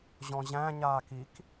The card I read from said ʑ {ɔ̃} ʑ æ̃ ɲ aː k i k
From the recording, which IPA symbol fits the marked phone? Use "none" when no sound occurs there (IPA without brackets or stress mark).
ɔ̃